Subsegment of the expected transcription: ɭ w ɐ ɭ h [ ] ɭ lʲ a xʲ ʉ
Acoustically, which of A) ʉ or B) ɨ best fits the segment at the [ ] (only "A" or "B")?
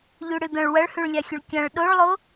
A